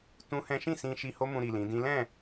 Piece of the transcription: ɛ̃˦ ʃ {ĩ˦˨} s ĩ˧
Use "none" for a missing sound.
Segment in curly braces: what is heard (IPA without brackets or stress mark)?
ĩ˦˨